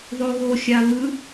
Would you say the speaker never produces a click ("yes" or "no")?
yes